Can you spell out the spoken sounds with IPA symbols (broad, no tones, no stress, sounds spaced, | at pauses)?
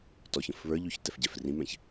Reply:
t ɔ ç ə̃ f β ə˞ ʎ y ç t ɛ f ɟ ɛ f r ĩ m ɛ̃ ç